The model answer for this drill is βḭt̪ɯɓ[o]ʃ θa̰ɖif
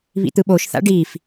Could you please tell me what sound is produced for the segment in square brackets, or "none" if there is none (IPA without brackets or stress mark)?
o